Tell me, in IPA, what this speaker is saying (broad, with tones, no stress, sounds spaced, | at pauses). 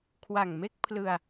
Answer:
kʰ w a˨˩ ŋ m e˥˩ k̚ pʰ l ɯ˧ a̯